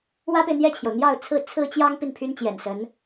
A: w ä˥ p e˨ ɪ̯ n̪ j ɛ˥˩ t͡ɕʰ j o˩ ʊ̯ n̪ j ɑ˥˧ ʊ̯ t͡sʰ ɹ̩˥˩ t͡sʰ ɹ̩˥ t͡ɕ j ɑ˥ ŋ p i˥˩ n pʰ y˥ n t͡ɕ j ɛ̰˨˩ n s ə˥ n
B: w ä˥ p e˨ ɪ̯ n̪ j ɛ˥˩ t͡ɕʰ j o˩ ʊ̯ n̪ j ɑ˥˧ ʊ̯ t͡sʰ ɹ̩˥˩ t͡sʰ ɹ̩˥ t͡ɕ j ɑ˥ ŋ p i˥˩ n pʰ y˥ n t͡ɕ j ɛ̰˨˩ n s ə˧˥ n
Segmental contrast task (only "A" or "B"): B